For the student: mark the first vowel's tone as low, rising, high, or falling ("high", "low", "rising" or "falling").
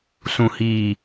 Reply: low